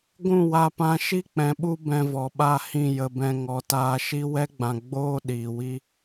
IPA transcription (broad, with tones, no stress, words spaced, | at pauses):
ɡʷũ˦˨wa˧pã˧ ʃi˦k͡pɛ̃˨ɓu˧ bɛ̃˧vɔ˨ɓa˦˨hĩ˦˨ jə˧bɛ̃˧ ŋɔ˨taː˧ʃi˦ wɛ˦ɡ͡bã˨ ɡ͡boː˦ ɗiː˨wi˦